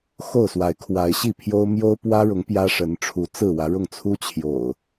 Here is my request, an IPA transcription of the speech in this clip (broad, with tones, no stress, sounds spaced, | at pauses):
x o˥˨ ʊ̯ s w a˨˦ ɪ̯ kʰ w a˨˦ ɪ̯ ɕ i˥˨ pʰ j o˦ ʊ̯ m j o˦ ʊ̯ p w ä˦ ɻ ʊ˨˦ ŋ p j ä˦ ʂ ə˨˦ n ʈ͡ʂʰ u˨˦ t͡s ɹ̩˥˨ w ä˨˦ ɻ ʊ˥˨ ŋ t͡sʰ u˦ t͡ɕʰ j o̰˨˩ ʊ̯